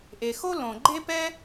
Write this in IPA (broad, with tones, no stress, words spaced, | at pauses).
ʔe˩xo˥ lõ˩ ɡ͡ǃe˥pɛ˥